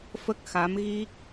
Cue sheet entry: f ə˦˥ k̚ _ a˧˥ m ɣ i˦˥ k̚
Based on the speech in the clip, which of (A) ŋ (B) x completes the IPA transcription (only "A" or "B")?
B